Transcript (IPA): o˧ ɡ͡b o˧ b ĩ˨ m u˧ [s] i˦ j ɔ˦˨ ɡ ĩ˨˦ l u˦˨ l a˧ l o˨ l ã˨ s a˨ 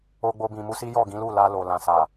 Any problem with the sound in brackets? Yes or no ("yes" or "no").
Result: no